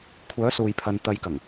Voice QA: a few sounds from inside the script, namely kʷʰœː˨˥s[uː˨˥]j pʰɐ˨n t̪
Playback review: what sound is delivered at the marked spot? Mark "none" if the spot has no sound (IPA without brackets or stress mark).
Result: uː˨